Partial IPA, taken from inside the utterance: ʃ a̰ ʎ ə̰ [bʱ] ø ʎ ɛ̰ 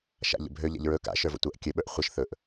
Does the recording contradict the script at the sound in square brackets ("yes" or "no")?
no